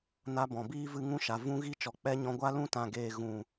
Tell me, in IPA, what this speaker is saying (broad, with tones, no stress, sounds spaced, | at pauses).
n a˧ b ɔ̃˨ b iː˦ v ɨ˧ ŋ ũ˦ ʃ a˨ v ũ˦ ɣ i˦ t͡ʃ ɔ˨ k͡p ɛ˦ ɲ ɔ̃˧ ɡʷ a˦ l ũ˦ t ã˨ ɡ eː˨ ɣ ũ˨